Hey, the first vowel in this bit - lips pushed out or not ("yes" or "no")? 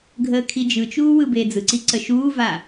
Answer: no